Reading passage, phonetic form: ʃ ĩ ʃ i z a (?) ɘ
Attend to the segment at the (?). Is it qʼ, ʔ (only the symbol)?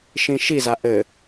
ʔ